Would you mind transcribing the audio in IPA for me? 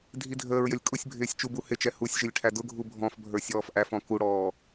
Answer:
dʱ i dʱ əː ɹ j ə lʲ kʼ ʊ sʲ bʱ ɪː sʲ t͡ʃ u b u h ɪ t͡ʃ ɛ h u sʲ ʒ ɪ lʲ ʈʰ æ d ʊ ɡʱ u bʱ ɔ̃ f bʱ ə˞ sʲ ɔː f ʔ æ f ɔ̃ k u ɽ ɔː

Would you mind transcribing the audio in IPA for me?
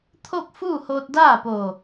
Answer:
t̪ʰ o˥˨ k̚ f uː˥˨ h oː˧ t̚ d aː˥˨ p o˧˩

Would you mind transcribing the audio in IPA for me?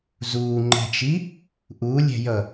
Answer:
z uː ŋ͡ǃ ɛ̤ t͡ʃ i | ʔ u lʲ ɛ̤ j ʌ

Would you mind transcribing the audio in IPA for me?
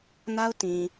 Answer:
n a˦ ʊ̯ t ĩ˨

